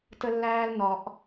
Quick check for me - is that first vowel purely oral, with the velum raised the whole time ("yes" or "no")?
yes